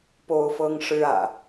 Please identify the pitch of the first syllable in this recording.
high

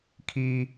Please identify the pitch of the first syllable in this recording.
high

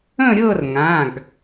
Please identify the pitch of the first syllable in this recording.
falling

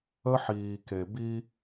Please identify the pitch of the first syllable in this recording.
high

